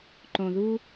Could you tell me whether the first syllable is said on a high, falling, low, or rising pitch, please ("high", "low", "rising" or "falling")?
low